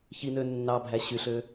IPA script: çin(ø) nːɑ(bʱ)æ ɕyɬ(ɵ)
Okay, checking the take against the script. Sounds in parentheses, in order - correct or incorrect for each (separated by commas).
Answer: correct, correct, incorrect